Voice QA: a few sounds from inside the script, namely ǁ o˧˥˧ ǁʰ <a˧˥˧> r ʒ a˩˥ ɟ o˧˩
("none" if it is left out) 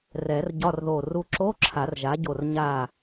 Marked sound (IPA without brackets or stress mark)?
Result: a˨˩˦